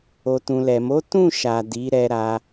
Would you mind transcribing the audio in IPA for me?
o˨ t ũ˨ l ɛ˨ m o˨˦ t ũ˦˨ ʃ a˨ d i˨˦ ɾ ɛ˧ ɾ a˧

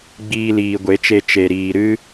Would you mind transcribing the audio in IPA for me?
ɡ͡b iː˧ l iː˨ ɡʷ e˨˦ t͡ʃ e˧ t͡ʃ e˨ ɾ iː˨ ɾ ɨ˦

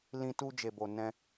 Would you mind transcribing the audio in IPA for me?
l ĩ˧ t u˧ d͡ʒ e˨ b o˨ n ɛ̃˧

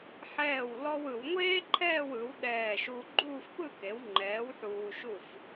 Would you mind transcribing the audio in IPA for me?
ħ ɛː˧˩ w l ɔ˥ w ɯ˧˩˧ w ŋʷ eː˥ ǃʰ ɛː˥˨ w ɯ˩˥ w ɗ ɛː˧˩ ʃ u˧ ɡ͡ǃ uː˥˨ f p ɯ˥˨ k e˩˥ w ŋ͡ǃ ɛː˩˥ w ħ uː˧ ʃ u˥˨ f

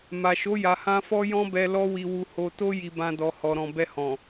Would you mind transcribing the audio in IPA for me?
m a˨ ʃ o˨˦ j a˧ h ã˦ f ɔ˦ j ɔ̃˦ b ɛ˧ l ɔ˦ w i˧ w u˧ h o˧ t o˦ j i˧ b ã˧ d ɔ˨ h ɔ˨ ɾ ɔ̃˨ b ɛ˧ h ɔ̃˨

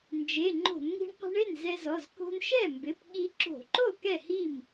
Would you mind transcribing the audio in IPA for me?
n d͡ʒ e˩˧˩ ŋ͡ǃ o̤˧˩˧ n ŋ i̤˧ ɳ qʷ i̤˧ ɳ e˥˩ n z ɛ˧ z ɔ˩˧˩ z k o̤˧ n ʃ ɛ˥˩ m b ɪ˩˧˩ p ɠ i˧ ǁ o̤˧˩˧ ǃ o˥˩ k ɛ˥˩ h i˥˩ m

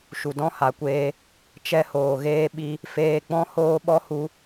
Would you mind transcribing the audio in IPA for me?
ʃ u˨ d ɔ̃˦ h a˨ kʷ eː˧ | t͡ʃ ɛ˧ h oː˨ ɣ eː˧ ɓ i˧ | f eː˧ ɡ͡b ɔ̃˦ h oː˦ ɓ ɔ˦ h u˧

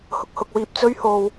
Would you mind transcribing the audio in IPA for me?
h ʊ˨ k̚ h ʊ˧ k̚ w iː˧ p̚ t͡s ɵ˥ ɥ h o˧ w

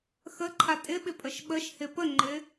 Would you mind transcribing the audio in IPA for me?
x ə ǃʰ a tʼ ɪ ɓ ɪ pʼ ə ʃ ɓ ə ʃ h ɪ p ə ŋ͡ǃ ɪ

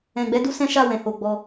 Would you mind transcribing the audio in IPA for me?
ɛ̃˧ ɡ͡b ɛ˦ d u˦ s ɛ̃˦ ʃ a˦˨ w ɛ̃˨˦ h o˧ ɡ͡b ɔ˧

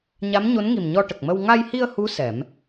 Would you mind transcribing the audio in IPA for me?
ɲ a˧˥ m ɲ o˧˥ n ŋ i˨˩ m ɲ ɔ˧ ʈ ə˨˩ k̚ m ə˧ w ŋ a˧ j h i˧ ə̯ h u˧˥ s ɛ˨˩˦ m

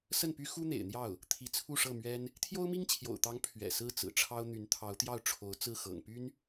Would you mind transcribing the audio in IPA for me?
s ə˥˩ n p y˥ x u˥ n̪ ḛ˨˩ ɪ̯ n̪ j ɑ˥˩ ʊ̯ | t̪ʰ i˧˥ t͡sʰ u˥˧ ʂ ɤ˥˩ m ɥ ɛ˥ n | t̪ʰ j o˥ ʊ̯ m i˥ ŋ t͡ɕʰ j o̰˨˩ ʊ̯ t̪ ɑ˧˥ ŋ pʰ ɥ ɛ̰˨˩ s ɹ̩˥ t͡s ɹ̩˨˩ ʈ͡ʂʰ ɑ˥ ʊ̯ n̪ y˧˥ n t̪ʰ ɑ˧˥ ʊ̯ t̪ j ɑ˥˩ ʊ̯ ʈ͡ʂʰ o˧˥ ʊ̯ t͡s ɹ̩˥˩ x ɤ̰˨˩ ŋ p y˥ n

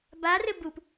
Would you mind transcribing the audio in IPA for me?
b a r ɘ b u p

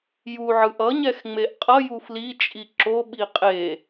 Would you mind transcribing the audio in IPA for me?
j u ʕ ɯ ʔ ʌ ɲ ɛ x ŋ͡m e ʔ qʼ ʌ j u f l i t͡ʃʼ i ǁ o ɓ i qʼ e

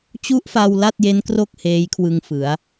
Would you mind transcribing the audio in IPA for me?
t͡ɕ u˦˥ ʔ f a˧ w l a˥˩ t̚ j e˦˥ n k r o˥˩ k̚ h eː˦˥ j kʰ w ɯ˧ ŋ f ɯ˩˦ a̯

